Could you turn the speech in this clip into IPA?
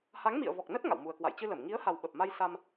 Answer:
ha˨˦ŋmḭ˧˨ə̯vɔ˨˩k̚nə˦˥t̚ ŋa̰˧˨wmu˨˩ə̯kwa̰˧˨j t͡ɕɨ˧lə˧˩m ŋi˨˦ə̯ha˨˩w ɓə˨˩p̚ma˧jsa˧m

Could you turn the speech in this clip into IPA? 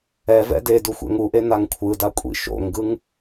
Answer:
ɛvɛ̰ dedu xʷɛ̰ŋuʔe naŋkʷʰɯda kʷʼḭʃo̰ŋɡɯŋ

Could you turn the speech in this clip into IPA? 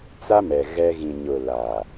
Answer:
t͡sa˦mɛ˨ ɣɛ˦ ɣĩ˨ɲʊ˨ laː˨

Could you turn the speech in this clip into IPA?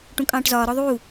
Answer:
ʈũkʼɑ̃ːʈzɒː ɾɔðˤuː

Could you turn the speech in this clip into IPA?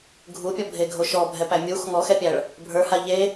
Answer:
ɡʱupʲɔbʱeɡʱo ʃɔbʱɛpæ mʲux ŋɔxɛpʲæɭ | bʱə˞ha ʎe

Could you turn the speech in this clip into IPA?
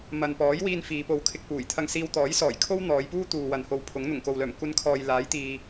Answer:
mɐ˨npɔː˨˥jwiː˧n fiː˨˧po˧wkʰɪ˧k̚puː˨˩j t̪ʰɐ˧ŋsiː˧w t̪ɔː˨˥jsɔː˨˩jkʰo˥w n̪ɔː˨˧j puː˥ t̪uː˨wɐ˨nho˧w pʰʊ˨˥ŋ n̪ʊ˨˩ŋko˨wlœː˨˩m kʷɐ˧nkʰɔː˨j laː˨˥jt̪iː˨

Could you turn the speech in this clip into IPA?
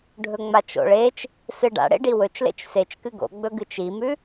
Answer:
ɖʱɵŋ͡mat͡ʃo̰ɭet͡ʃ | sɨɖa̰ɽḛ ɖiwɵt͡ʃlḛt͡ʃ set͡ʃ kɨɡo̰ɡ͡bɵ ɡɨt͡ʃimʉ

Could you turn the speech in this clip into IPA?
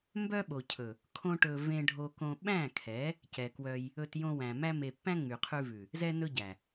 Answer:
mbœ˦ɓo˨cʰɵ˨ | kʰõ˦ʈɵ˧ vẽ˦ɖʱo˦kõ˦ ɓæ̃˦˨kʰɛ˨˦ | cɛ˨kwœ˧j | ɵ˧t jõ˧wæ̃˨mæ˦ me˧ pːæ̃˦ŋ͡my˨qʰʉ˧vʉ˨ | zɛ˦ nɵ˦ɟæ˨

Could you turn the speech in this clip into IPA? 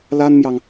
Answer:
la˥nmjɑ˨ŋ

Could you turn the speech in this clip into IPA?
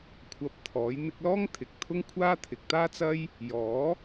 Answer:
kʷʰɐ˧p̚t̪ʰɔː˨˥j n̪ɪ˧k̚lɔː˥ŋ t̪ʰɪ˨k̚t̪ʰʊ˥ŋkʷʰaː˥ t̪ʰɪ˨k̚t̪aː˥t͡sɐ˥j | jɔː˨˥

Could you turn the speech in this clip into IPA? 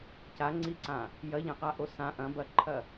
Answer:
caŋ͡ǀiǀã | jɐʎɛ̃qaʔo sã ʔɐ̃bɐǃʰɐ

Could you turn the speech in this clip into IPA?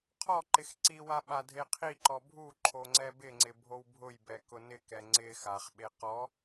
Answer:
qʰɔǃɪx ǀiwa ɓadʱeqʰiǃɔ bʱu ǃʰoŋ͡ǀɛbɪŋ͡ǀɪ bʱowbʱʊjbɛ kʊnɪkɛ ŋ͡ǀɪ xaχɓe qɔ

